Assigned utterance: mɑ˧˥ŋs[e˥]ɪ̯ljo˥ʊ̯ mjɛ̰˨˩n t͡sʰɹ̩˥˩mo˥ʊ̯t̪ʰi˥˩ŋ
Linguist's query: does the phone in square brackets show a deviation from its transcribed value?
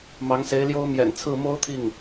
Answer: yes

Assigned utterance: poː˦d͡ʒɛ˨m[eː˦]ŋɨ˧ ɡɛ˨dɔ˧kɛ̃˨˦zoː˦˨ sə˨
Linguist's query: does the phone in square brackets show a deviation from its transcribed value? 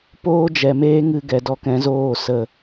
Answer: no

